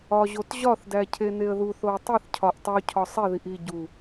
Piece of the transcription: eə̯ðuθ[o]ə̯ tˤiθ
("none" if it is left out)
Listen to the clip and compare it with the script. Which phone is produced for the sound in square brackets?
o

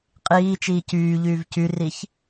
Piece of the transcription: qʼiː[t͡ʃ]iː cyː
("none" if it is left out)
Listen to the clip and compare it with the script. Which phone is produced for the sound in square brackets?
t͡ʃ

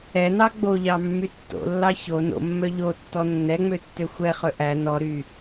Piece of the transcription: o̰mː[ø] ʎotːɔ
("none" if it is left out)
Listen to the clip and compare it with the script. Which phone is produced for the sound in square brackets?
œ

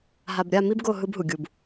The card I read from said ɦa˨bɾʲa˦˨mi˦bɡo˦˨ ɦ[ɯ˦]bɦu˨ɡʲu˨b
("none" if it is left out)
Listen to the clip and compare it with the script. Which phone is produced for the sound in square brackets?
ɯ˦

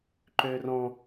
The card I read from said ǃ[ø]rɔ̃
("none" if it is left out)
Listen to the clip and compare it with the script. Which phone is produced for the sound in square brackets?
ø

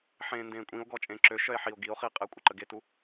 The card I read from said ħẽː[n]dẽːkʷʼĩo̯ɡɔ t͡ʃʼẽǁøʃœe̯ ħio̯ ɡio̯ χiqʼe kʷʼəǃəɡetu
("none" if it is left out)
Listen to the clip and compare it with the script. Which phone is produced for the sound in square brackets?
n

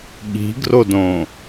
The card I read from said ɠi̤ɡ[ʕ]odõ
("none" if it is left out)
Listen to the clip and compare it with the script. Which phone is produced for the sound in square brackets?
r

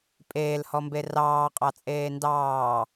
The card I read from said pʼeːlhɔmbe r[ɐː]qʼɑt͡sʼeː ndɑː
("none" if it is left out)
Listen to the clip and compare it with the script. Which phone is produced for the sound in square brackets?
ɑː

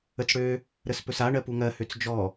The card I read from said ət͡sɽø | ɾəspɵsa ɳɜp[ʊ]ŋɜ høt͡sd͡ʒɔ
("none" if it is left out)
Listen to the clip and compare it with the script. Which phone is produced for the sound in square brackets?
u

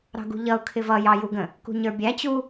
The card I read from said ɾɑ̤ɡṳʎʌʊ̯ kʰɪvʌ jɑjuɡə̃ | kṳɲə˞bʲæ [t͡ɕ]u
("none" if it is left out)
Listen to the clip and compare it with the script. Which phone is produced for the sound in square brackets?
t͡ɕ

